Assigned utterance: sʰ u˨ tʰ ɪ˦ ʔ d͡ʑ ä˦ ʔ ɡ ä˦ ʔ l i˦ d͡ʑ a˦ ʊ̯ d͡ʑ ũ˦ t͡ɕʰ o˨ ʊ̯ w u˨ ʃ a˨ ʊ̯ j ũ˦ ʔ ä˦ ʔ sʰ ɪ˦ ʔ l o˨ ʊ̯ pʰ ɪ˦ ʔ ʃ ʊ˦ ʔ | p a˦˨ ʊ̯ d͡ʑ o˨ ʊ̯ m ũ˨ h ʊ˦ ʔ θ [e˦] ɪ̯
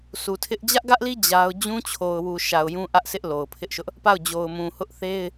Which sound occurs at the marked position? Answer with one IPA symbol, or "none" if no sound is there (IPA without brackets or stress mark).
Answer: e˦